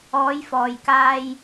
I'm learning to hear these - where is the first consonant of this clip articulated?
palate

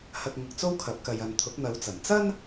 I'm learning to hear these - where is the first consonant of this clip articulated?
throat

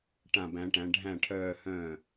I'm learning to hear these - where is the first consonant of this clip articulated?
retroflex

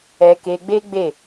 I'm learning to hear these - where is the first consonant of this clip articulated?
velum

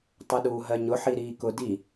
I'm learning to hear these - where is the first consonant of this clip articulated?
tongue tip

